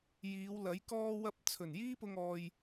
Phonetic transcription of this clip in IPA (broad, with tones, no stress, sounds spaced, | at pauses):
j iː˨˧ w l ɐ˨˥ j k ɔː˧ w ɐ˧ p̚ t͡sʰ ɵ˨˩ n j iː˥ p ʊ˧ ŋ ɔː˧ j